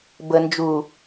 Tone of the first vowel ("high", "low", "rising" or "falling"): low